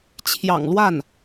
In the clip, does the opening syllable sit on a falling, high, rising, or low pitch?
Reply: low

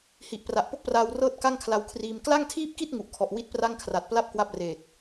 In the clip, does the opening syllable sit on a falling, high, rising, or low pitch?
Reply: low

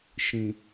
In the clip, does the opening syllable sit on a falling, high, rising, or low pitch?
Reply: low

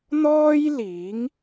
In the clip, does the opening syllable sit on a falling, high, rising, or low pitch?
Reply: high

